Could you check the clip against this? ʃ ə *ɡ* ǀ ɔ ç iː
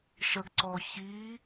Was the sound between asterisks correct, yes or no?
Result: yes